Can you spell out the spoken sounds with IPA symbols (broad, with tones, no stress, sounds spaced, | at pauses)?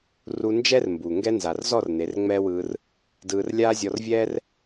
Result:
r u˧ n d͡ʒ ɛ˦ r m b u˨ ŋ ɡ ɛ˦ n z a˨ r z ɔ˦˨ r n e˨˦ r ŋ͡m ɛː˦ w ɯː˧ r | d ɯː˧ r lʲ aː˦ zʲ ɔ˧ r vʲ ɛː˦ r